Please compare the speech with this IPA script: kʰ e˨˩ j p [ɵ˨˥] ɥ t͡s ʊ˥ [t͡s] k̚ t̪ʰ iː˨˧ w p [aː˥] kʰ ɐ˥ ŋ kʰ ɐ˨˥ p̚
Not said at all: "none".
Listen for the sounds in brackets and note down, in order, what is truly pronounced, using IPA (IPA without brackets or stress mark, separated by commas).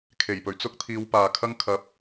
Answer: ɵ˨˩, none, aː˨